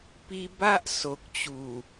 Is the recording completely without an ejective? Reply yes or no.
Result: yes